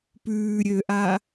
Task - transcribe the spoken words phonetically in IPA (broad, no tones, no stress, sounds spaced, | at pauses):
p ʉː ɾʲ ø ʔ a